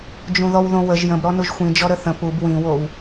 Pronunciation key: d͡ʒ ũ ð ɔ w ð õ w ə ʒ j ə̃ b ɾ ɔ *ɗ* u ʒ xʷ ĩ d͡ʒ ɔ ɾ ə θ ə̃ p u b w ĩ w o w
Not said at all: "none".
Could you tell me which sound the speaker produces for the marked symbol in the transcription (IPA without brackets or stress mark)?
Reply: n